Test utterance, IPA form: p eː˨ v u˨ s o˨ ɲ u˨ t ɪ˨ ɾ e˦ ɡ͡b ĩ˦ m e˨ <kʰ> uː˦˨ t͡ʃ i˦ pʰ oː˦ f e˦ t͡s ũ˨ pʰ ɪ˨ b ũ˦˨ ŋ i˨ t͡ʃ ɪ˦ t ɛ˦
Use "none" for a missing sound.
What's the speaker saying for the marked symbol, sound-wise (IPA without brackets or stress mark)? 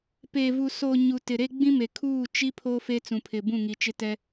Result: kʰ